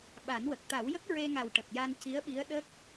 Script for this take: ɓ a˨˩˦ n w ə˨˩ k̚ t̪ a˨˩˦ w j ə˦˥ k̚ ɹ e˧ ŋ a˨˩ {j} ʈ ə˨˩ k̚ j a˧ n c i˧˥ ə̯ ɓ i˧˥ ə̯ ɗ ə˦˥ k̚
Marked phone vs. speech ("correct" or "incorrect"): incorrect